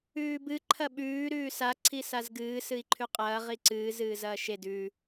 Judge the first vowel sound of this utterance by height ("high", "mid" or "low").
high